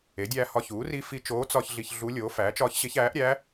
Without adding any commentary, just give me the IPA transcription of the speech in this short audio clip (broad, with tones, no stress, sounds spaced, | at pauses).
e˩˥ dʲ æː˧ h ɒ˧ ç uː˩˥ r i˧˥ f i˧ t͡ʃ oː˧˥ t͡s ɒ˧ ç ɮ i˧ ç ɮ u˧˥ lʲ oː˩˥ f æː˩˥ t͡ʃ ɒː˧˥ ç ɕ e˧˥ ç æː˩˥ ʔ ɾʲ æ˧˥